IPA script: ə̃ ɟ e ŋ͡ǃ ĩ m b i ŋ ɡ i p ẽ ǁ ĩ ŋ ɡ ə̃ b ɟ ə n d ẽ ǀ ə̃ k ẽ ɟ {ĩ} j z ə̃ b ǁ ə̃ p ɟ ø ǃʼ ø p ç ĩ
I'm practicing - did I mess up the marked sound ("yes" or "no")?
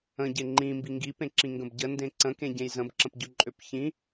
yes